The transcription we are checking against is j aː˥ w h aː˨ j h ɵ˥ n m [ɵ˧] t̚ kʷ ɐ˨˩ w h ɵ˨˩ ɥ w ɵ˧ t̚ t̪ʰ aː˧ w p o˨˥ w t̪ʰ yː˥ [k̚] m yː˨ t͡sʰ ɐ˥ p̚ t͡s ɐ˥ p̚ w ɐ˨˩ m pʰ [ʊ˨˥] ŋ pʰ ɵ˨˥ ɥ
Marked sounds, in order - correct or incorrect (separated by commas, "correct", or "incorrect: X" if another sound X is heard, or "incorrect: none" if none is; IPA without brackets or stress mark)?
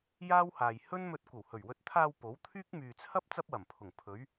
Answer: correct, correct, incorrect: ʊ˨˩